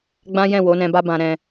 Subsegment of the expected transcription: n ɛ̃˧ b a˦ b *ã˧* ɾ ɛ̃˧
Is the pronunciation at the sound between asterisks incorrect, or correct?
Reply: correct